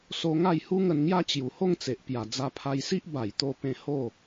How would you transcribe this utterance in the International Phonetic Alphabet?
s o˧ ŋ a˥˧ j h u˦ ŋ ə˧ n ŋ j a˦ t͡ɕ j u˨˩ h o˥˧ ŋ t͡s e˨ ʔ p j a˨˩ d͡z a˧ pʰ a˧ j s i˦ ʔ b a˨˩ j t̪ o˧ p ẽ˧ h o˥˧

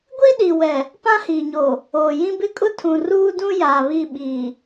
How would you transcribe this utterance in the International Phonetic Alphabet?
ɡʷ i˦ ɗ i˨ w ɛ˨ | p ã˦ h iː˨ ɲ oː˨ | oː˨ j ĩ˦ b ɪ˦ kʼ ʊ˦ tʰ ũ˨ r uː˦ d ũ˦ j aː˨ β i˦˨ ɓ iː˨

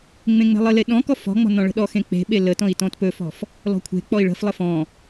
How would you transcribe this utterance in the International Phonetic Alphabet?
ŋ͡m ẽ ŋ͡m e̤ lˠ ə l e ɗ ɔ̃ k ɔ f ɔ̤ ŋ͡m ɔ̤ n ɔ̃ ɭ ə̤ ɗ ɔ x ẽ k͡p e̤ ɓ e l ə t ɔ̃ i̯ t ɔ̃ t p ɵ f ɔ̤ f | l ɔ̤ kʷʰ e̤ k͡p ɔ i̯ ɭ ə̤ f lˠ ə f ɔ̃

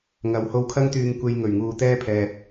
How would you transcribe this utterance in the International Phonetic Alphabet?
ŋ ɐ˨˧ w h o˧ w kʰ ɐ˥ ŋ t̪ yː˧ ŋ kʷ e˧ j ŋ ɵ˨˩ ɥ ŋ uː˨ t̪ ɛː˥ pʰ ɛː˨ t̚

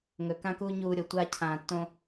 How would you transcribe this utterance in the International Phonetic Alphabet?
ŋ ɵ˨ k ã˦ k uː˦ ɲ uː˧ ɾʲ o˨ tʷ a˧ cʰ ãː˨ tː õ˧

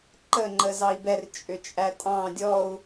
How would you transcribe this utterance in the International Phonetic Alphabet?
ǃ ə ŋ͡ǃ ə z ɑ i̯ b ɛ r t͡ʃʼ ʏ t͡ʃʼ æ tʼ ɑ̃ dʲ ɔ u̯

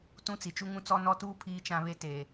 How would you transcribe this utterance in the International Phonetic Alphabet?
t ũ˦ t͡s i˨ t͡ʃ u˦ ŋ ũ˦ t͡s ɔ˦ n ɔ˦ t uː˦ pʰ iː˦ t͡ʃ ã˦ β e˦ t eː˨

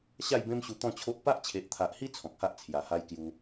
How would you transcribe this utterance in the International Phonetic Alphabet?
ɕ a˥˧ j b ẽ˦ m ɕ u˧ t̪ ɔ̃˥˧ t͡ɕʰ o˦ ʔ p a˦ ʔ t͡ɕʰ e˨ ʔ t̪ʰ a˨ ʔ h i˦ t͡sʰ ɔ̃˨ k̚ h a˦ ʔ t͡sʰ j a˨˩ h a˦ j k j u˧

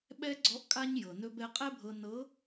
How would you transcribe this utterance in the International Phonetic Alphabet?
ɓ ɛ˥ ɡ͡ǀ ɔ˧˥ ʔ kʼ a˥ ɲ j ɤ˩ n ɵ˧ b ɛ˧ qʼ ɛ˥ bʱ ɤ˧ n ɤ˧˥

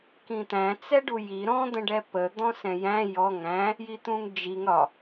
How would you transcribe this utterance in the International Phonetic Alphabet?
k ĩ t̪ æ̃ t͡s ɛ ɖ u j i ɾ ɔ̃ d̪ ə̃ ɖ ɛ p ə d̪ ɔ̃ s ɛ̃ j æ̃ j ɔ ŋ æ̃ | j i t̪ ũ ŋ d͡ʒ i ŋ ɾ ɒ

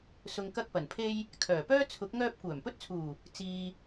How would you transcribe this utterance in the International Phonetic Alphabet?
s ʊ˨ ŋ k ɐ˧ k̚ p ɐ˨˩ n pʰ e˧ j | kʰ œː˨˩ p œː˥ t͡sʰ ʊ˨˥ k̚ ŋ œː˧ p̚ kʷ œː˨˩ m p ɵ˥ t̚ t͡sʰ uː˨˩ | t͡s iː˨

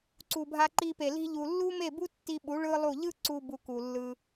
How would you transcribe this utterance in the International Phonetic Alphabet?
ǀ u˨ bʱ a˧ ǃ i˧ p e˨ l i̤˧ ʎ u˨ lː u˦ m e˦˨ b u˦ tː i˧ ɓ u˨˦ ɭ ɯ˦ lˠ u˦˨ ʎ ɯ˦ ǀ u˧ b u˧ k u˨ lː ɯ˧

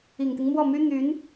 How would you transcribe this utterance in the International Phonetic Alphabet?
i˨˩ ŋ t̪ i˦ ŋ m w ɔ˥˩ m y˥ n̪ y˧˥ n

